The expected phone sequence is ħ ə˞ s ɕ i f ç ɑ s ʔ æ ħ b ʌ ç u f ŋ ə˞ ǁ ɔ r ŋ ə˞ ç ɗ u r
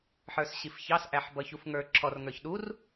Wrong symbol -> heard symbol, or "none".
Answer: none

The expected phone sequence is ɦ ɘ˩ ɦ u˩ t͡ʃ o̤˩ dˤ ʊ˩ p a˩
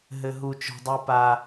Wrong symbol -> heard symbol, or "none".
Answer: ʊ˩ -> u˩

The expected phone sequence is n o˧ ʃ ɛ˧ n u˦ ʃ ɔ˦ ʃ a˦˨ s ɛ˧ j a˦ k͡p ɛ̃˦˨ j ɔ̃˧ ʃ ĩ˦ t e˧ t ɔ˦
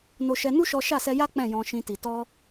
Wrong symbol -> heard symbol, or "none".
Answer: e˧ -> i˧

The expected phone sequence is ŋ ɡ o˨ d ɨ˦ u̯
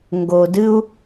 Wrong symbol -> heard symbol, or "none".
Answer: none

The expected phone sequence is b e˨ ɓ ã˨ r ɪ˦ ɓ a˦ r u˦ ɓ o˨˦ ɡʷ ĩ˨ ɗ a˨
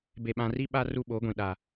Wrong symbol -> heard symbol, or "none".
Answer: ɪ˦ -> i˦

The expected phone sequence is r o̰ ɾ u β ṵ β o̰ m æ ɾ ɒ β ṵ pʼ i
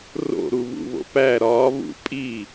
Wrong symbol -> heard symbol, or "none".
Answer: m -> p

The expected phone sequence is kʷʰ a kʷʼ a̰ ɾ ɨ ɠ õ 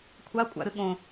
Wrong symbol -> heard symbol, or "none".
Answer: none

